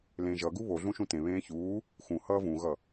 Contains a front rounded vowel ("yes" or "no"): no